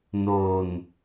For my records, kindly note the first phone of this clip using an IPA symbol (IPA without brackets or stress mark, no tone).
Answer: n